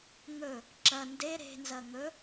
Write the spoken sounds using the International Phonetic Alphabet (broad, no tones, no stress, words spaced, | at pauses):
ŋɵ | ǁɐ nde ɾe̤nzɐ ŋɵ